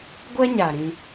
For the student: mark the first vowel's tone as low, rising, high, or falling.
high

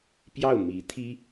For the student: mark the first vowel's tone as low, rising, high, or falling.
falling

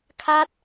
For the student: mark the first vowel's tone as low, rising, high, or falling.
high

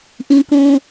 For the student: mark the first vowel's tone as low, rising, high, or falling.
high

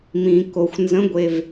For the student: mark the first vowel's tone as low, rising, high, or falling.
low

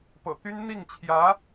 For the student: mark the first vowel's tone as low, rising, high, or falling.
low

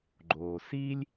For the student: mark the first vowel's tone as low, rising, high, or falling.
low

